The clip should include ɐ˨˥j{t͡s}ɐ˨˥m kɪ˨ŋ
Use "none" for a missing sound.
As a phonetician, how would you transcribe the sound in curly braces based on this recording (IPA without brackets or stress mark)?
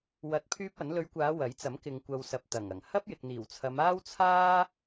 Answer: t͡s